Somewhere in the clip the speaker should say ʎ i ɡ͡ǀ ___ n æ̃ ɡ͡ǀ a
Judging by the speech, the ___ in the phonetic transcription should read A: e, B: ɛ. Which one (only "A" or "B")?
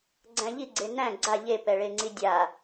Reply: A